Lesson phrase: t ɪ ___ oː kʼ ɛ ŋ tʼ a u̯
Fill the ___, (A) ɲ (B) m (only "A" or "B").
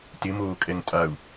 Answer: B